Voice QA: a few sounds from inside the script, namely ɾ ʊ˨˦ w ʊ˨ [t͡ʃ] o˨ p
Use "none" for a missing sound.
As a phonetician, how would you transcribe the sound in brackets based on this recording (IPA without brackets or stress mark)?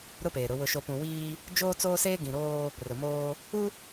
ʃ